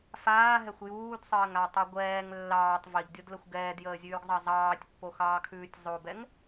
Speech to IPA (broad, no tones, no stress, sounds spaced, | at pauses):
f aː ɦ ɛ xʷ j uː d sˤ əː ŋ a tˤ u ɡʷ ɛː ŋ lː ɑː tˤ v i ɡ dʲ o d l ə xʷ ɡ ɛː d j əː zʲ ʉː ɡ zˤ ɑ zˤ ɑː tʲ pː o x ɑː kʰ ʉː tʲ zˤ o b ɛ ŋ